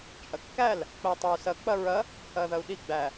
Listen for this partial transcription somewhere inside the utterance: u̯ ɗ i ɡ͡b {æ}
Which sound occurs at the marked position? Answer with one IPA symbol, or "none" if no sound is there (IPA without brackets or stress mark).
æ